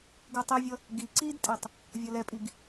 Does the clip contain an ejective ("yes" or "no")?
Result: yes